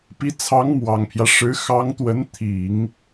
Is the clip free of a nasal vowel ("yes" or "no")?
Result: yes